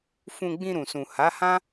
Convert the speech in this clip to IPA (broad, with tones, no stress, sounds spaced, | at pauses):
f ũ˧ ɡ͡b ĩ˧ ɾ ũ˨ s ũ˨ h a˨˦ h ã˦